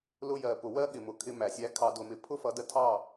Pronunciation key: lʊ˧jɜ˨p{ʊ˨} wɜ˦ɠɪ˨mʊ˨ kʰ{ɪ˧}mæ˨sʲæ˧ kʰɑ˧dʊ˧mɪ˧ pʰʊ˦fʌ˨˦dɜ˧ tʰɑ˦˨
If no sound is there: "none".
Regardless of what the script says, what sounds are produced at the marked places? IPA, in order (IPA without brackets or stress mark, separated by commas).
ʊ˨, ɪ˧